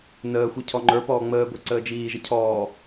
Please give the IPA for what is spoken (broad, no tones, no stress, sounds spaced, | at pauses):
n əː xʷ i cʰ ɔ ŋ͡ǃ ə˞ p ɔː ŋ͡m əː ɡʷ i ǀ əː d͡ʒ iː ʒ ə cʰ ɔː